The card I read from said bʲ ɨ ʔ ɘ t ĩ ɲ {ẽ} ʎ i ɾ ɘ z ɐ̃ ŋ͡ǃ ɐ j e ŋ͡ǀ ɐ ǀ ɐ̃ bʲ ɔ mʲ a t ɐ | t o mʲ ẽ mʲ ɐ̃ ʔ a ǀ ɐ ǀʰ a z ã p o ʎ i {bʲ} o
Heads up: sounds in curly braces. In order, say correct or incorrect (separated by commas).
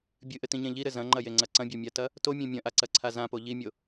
correct, incorrect